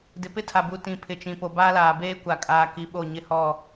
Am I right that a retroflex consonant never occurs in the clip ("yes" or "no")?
yes